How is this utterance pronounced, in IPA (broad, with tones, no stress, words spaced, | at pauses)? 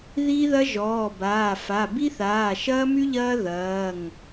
ði˥ðɐ˥ ʒɔː˩˧˩baː˩˧˩fa˩˧˩ bi˥θaː˩˧˩ʃɐː˥my˥ ʎɐː˥ðɐː˩˧˩ŋ